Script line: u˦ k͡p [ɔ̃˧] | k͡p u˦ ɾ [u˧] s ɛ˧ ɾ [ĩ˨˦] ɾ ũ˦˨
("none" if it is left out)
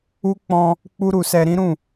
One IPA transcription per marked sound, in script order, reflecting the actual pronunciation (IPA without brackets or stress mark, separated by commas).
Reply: ɔ̃˧, u˧, ĩ˦